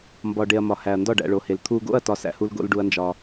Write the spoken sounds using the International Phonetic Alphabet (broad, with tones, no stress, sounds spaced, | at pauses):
m b ɒ˨ ɖ e˨ ɐ̯ m ɒ˨ h æ˨ ɐ̯ n d ɒ˦˨ ɖ æ̰˨ ɭ o˨ h e˨ l t̪ʰ u˨ ɡ o̰˦˨ ɐ̯ t ɒ˦ s æ̰˦ h u˦ l ɡ o̰˦ l ɖ u˦ ɐ̯ n d͡ʒ ɒ˦